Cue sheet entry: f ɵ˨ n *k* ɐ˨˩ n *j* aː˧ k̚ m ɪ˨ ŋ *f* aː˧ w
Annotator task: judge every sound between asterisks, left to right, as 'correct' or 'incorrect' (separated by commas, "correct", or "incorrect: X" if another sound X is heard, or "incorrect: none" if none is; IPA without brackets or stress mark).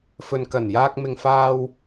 correct, correct, correct